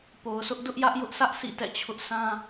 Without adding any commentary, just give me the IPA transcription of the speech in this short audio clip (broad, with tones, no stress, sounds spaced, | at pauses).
p o˨ ʊ̯ s ʊ˦ ʔ d ʊ˦ ʔ j ä˦ ʔ j ʊ˦ ʔ sʰ ä˦ ʔ s ḭ˦˨ t ɛ̰˦˨ t͡ɕʰ ʊ˦ ʔ s ã˦